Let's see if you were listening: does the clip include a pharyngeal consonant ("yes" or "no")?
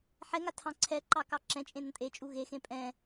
yes